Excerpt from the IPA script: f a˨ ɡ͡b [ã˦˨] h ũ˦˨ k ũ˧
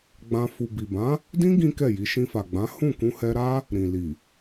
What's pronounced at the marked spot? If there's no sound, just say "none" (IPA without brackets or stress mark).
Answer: ã˨˦